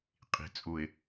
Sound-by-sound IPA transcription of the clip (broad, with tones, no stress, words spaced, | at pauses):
qʼi̤˨ t͡sʼu˨ɪ̯